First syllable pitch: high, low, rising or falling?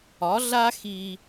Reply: rising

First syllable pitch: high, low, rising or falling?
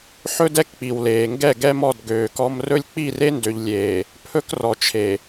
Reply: high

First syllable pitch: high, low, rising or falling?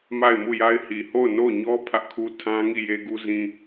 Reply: falling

